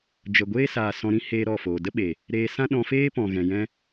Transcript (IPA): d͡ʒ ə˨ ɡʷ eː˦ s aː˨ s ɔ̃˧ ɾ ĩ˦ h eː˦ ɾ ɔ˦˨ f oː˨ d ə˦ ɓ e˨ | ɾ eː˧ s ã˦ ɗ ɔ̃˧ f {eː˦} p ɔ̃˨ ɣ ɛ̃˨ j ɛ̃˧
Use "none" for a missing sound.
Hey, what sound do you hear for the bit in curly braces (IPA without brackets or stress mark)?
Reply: eː˦